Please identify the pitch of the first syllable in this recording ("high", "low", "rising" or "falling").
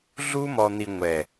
high